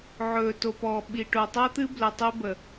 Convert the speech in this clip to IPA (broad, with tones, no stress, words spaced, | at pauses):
ʕɵː˨to˨pɔː˨ ɓi˨ʈo˨ tˤɤ˦t̪ɨ˦blə˨ tˤe˦bə˨